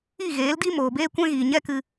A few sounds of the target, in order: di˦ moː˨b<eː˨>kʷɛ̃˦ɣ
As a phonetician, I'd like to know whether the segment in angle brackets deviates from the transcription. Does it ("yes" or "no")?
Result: yes